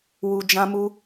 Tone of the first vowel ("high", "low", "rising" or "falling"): low